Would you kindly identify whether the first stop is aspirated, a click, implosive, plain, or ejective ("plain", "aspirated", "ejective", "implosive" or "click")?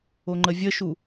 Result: click